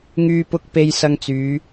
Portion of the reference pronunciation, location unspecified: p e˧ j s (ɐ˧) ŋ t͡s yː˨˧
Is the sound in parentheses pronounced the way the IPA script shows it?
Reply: yes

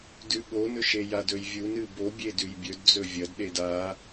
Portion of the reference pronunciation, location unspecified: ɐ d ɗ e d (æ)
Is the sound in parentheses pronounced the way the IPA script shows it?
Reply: no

